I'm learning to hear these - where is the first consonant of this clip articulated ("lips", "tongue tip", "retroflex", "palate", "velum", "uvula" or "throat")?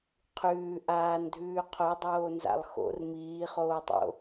uvula